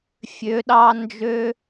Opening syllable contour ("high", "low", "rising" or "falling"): rising